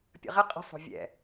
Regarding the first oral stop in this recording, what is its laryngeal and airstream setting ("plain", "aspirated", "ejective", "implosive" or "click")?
plain